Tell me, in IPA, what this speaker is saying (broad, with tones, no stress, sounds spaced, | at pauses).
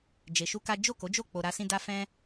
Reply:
d͡ʒ e˧ ʃ u˦ k a˦ d͡ʒ o˦˨ k o˨˦ d͡ʒ o˦˨ k͡p o˧ ɾ a˧ s ĩ˧ d a˧ f ɛ̃˦